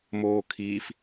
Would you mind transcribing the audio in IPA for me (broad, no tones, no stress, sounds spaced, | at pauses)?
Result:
m oː kʰ iː f